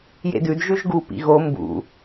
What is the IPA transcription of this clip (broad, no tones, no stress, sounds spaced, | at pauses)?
j ḛ d ʉ d ʒ ʉ ʒ ɡ u p ḭ ɣ o m b ṵ